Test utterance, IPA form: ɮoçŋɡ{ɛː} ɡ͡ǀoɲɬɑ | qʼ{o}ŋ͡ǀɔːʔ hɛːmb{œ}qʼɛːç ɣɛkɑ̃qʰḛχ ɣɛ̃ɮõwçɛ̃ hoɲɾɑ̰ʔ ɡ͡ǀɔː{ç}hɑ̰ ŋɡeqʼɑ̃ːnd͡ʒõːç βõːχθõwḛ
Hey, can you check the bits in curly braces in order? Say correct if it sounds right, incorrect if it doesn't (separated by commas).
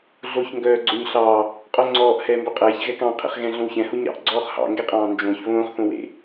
incorrect, correct, correct, incorrect